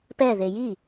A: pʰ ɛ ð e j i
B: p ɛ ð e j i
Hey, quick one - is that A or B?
B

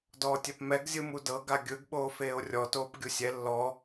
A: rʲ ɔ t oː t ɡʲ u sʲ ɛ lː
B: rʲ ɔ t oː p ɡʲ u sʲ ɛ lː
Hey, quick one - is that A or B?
B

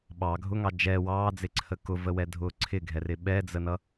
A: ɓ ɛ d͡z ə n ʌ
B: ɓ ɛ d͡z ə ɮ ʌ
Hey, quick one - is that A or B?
A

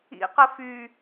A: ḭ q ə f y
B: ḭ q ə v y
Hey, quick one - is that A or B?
A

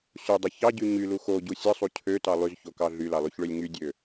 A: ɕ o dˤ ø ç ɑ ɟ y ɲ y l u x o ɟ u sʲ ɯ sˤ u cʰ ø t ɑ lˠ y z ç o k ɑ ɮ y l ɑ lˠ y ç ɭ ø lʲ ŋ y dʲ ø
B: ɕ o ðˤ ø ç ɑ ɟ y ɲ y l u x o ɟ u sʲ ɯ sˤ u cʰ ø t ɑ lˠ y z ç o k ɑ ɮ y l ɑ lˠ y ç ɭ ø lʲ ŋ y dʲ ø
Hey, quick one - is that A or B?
A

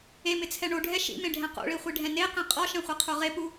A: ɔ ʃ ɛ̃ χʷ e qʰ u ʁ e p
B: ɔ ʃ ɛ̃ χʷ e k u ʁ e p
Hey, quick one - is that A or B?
A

